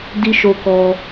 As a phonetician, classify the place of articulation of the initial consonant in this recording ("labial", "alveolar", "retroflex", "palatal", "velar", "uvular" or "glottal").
alveolar